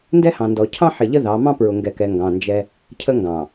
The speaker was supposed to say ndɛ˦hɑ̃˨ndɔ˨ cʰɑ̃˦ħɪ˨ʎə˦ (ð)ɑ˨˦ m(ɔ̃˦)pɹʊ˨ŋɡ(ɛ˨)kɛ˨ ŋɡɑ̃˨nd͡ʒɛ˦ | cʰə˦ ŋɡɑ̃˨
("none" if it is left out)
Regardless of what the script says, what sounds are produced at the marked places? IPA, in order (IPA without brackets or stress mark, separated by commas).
ð, ɑ̃˦, ɛ˨